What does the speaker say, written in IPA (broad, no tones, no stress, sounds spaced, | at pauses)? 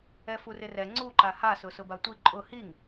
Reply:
ɛ f u r ɪ r ɛ ŋ͡ǀ u ǃ a h a s ʊ s ʊ b a tʷ i ǃʼ ʊ h i ŋ